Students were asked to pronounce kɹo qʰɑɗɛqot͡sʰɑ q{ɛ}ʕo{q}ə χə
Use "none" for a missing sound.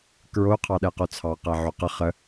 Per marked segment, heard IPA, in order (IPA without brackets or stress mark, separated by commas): ɛ, q